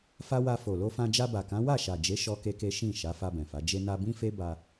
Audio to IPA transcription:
fa˦wa˧ fo˨lo˧fã˧ d͡ʒa˧ba˨kã˨˦ wa˦˨ʃa˨d͡ʒe˨˦ ʃɔ˦ke˦ke˦ ʃĩ˦˨ ʃa˨˦fa˧bɛ̃˨fa˨˦ d͡ʒe˧na˧bĩ˦fe˦ ba˧

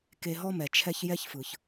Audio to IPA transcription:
ke˧ɦɔ˥mɛ˩ t͡ʃʰɛ˧ç jɛ˥çfɯ˩ç

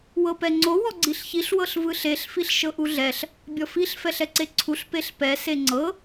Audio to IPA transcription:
wɤpɛŋ͡ǀo wɔɡ͡ǀiɬçiɬ wɤɬvɯɬeɬ fiɬʃɤʔuɮɛɬ | bʲɔfiɬ fɛɬɛǀeǀʰuɬ peɬpɛ seŋ͡ǀɤ

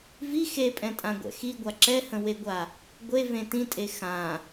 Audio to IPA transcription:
vi xepʼɛ̃tʼãɡʷɛ̰ xiɡʷa ǁɛhə̃weɡʷa | ɡʷevẽ tĩtʼe xã

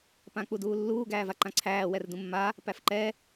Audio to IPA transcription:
pãk͡puduːlːuː ɡæːvaǃãǀʰæː wɛrdũmːa | pæfǃɛ

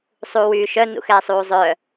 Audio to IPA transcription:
sˤuːwyːʃœ nṵxɛːsˤuːzˤœ

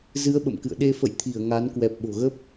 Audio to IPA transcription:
zɨ˨˦ə̯ ɓə̰˧˨mkɨ̰˧˨ə̯ ɗe˧fə̰˧˨jt̪ʰi˧˩ə̯ ŋa˨˦n kwɛ˨˩p̚ɓo̤˨˩ɣə˦˥p̚

